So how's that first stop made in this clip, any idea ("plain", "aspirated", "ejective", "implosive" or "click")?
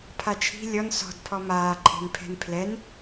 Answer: aspirated